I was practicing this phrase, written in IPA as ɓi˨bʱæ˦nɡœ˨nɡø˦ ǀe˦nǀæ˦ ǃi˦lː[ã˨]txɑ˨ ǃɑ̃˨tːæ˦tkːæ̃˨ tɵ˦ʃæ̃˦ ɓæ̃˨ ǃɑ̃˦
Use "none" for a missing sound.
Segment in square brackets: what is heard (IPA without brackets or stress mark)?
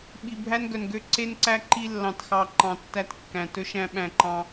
ɑ̃˨